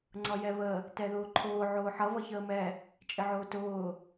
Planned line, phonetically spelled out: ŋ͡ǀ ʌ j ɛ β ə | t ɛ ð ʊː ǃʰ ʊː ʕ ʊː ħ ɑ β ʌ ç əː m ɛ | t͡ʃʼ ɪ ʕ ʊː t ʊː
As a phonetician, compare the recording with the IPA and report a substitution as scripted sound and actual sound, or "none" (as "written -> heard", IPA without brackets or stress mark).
ɑ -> ʌ